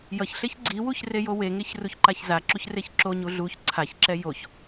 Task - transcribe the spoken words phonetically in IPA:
j ʌ ç ɬ e ç ɡ͡ǀ i w u ç r e j o w e ŋ e ç r u ç ǃ a ç z a ǁ u ç r e ç ǁ o ɲ u ɮ u ç ǀʰ a ç ǁ ɛ j o ç

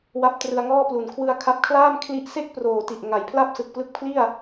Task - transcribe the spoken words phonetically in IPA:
w a˦˥ p̚ t r ɯ˧ a̯ ŋ ɔː˥˩ p l u˨˩ n kʰ w ɯ˧ a̯ kʰ a˦˥ p̚ kʰ l aː˥˩ m kʰ l i˦˥ ʔ s e˥˩ k̚ p r oː˨˩ t i˨˩ ʔ ŋ a˩˦ j pʰ l a˥˩ p̚ s ɯ˨˩ k̚ p l ɯ˦˥ k̚ pʰ l i˥˩ a̯

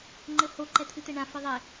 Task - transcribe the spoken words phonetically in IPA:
ŋ͡ǃ ɘ h o ǃ ɛ t̪ʰ ɨ t̪ ɛ ɳ ã f i ðˤ e

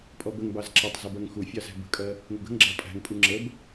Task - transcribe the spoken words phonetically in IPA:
pʼ ɔ b ə ŋ b ɑ z ǁ ʌ tˤ z ʊ b ɜ ŋ x u fʲ ɑ z æ̤ b ə̤ kʼ ɜ | ŋ ə̤ ɡ ə̤ ŋ ɡ͡ǁ ɑ pʼ æ̤ ŋ pʼ u ŋ͡ǁ ə b

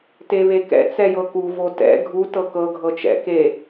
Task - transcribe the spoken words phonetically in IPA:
t e β e k ɛ̰ t͡s ɛ j ɤ k u v o t ɛ̰ ɡʱ u t ɤ k ɤ ɡʱ ɤ t͡ʃ ɛ̰ k e

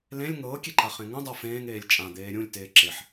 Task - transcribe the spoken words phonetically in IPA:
l ẽ lʲ ŋ ɤː kʲ e ǃ a χ ẽ ŋ ũ dˤ ɤ f ẽː ŋ eː lʲ t͡ʃʼ ã d̪ eː ɾʲ ũ lʲ t eː ǁ e ħ

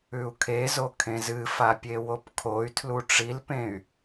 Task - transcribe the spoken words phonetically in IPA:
ʉ u̯ kʰ e z o kʰ ẽ z ɨ f a pʲ e w o p kʰ o y̯ tʰ l u ʈ͡ʂ i l p ẽ y̯

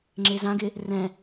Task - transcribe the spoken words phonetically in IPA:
ŋ͡ǁ e z ã ɡ ɪ | r ɛ̃

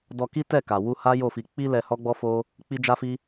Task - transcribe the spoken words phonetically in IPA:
d ɔ˧ k i˦ t ɛ˦˨ k a˨ w u˧ h a˦ j o˦˨ f i˧ k͡p i˦ l ɛ˧ h ɔ˦ ɡ͡b ɔ˦ f o˦ | k͡p i˦ d͡ʒ a˦ f i˦

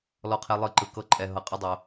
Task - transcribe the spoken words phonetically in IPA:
l ɔ˧ qʰ e˧ lˠ ɯ˦˨ ǃ ɯ˧ k ɤ˧ ǃʼ ɛ˨ ɦ ɤ˨ qʼ ɤ˦ dˤ o˨˦

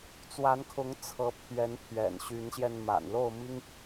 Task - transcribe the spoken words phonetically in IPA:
t͡s w a˨˦ n kʰ ʊ˨˦ ŋ t͡sʰ ɤ˨˦ pʰ ɥ ɛ˨˦ n pʰ ɥ ɛ̰˨˩ n ɕ y˨˦ n ɕ j ɛ˧ n m a̰˨˩ n l o˥˨ ʊ̯ m i˦ ŋ

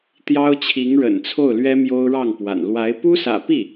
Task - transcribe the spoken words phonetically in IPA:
t̪ j ɑ˥ ʊ̯ t͡ɕʰ i˧˥ ŋ ɻ ə̰˨˩ n t͡sʰ o˥˩ ʊ̯ l ɥ ɛ˥ m j o˥ ʊ̯ ɻ ɑ˥˩ ŋ p w a̰˨˩ n l w a˧˥ ɪ̯ p u˥ s ä̰˨˩ p i˥˩

